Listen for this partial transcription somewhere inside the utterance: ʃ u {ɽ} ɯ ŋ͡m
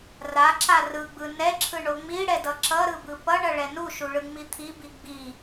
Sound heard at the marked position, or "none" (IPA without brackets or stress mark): ɭ